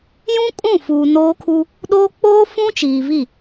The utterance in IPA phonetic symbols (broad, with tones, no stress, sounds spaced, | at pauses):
j ũ˦ kʼ ũ˦˨ f uː˨ n oː˦ kʰ u˦ | ɗ oː˦ k͡p oː˦ f ũ˦ t͡ʃ iː˨ v i˦˨